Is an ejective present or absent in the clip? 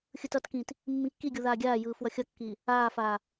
absent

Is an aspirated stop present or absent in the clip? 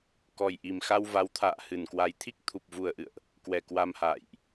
present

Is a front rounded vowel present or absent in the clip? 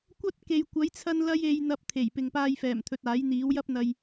absent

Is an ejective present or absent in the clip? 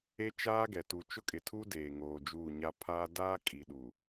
present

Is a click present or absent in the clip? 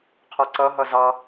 present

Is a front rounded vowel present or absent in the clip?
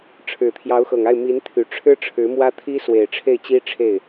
present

